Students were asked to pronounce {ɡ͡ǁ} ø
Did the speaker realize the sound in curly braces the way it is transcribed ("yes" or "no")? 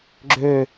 yes